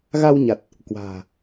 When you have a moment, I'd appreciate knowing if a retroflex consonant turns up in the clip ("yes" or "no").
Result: no